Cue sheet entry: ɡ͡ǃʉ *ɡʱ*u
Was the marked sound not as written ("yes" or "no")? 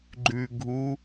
no